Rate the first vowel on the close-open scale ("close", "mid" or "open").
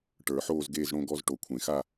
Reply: mid